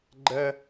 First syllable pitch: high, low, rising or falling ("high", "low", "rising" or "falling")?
high